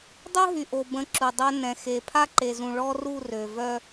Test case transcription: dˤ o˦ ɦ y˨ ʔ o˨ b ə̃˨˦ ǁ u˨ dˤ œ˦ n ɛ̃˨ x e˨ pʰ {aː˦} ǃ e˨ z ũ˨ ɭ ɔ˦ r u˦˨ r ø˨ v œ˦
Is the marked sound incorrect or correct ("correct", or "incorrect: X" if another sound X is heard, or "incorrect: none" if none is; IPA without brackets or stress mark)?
incorrect: a˦